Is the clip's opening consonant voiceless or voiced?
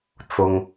voiceless